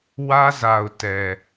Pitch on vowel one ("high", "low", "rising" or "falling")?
high